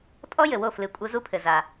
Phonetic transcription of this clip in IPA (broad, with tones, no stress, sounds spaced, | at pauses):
tʼ ɔ˦˥ j ɘ˩ w o˥˩ f l ɨ˧˩ kʷʼ ɘ˦˥ z u˦˥ pʰ ɘ˩ z a˩